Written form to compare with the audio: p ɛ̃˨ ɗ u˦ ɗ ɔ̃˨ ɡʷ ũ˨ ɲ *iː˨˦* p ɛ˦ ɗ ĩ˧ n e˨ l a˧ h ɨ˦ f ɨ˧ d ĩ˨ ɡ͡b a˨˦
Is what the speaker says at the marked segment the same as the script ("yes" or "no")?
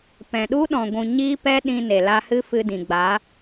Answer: no